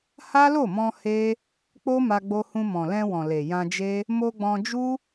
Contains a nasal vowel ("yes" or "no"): yes